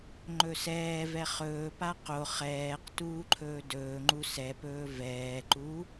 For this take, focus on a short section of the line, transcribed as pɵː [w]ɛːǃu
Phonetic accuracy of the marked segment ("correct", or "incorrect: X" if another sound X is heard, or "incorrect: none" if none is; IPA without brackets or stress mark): incorrect: v